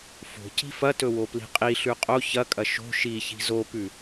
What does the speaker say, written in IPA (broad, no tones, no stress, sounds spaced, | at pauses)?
f o̤ c i̤ f ɐ t ɵ w o p l i̤ qʼ i ɬ ʉ qʼ o ç ɐ kʼ ɐ ʃ o̤ ʃ i ç i̤ z o p ʉ